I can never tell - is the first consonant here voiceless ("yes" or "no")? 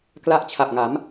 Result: yes